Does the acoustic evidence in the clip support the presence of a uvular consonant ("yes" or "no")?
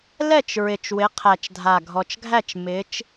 yes